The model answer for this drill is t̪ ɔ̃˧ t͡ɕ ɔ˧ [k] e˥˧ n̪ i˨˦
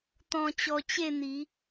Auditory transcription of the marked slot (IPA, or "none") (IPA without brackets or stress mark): t͡ɕ